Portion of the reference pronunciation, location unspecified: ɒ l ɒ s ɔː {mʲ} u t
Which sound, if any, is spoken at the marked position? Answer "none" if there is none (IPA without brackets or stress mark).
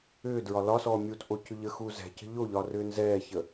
mʲ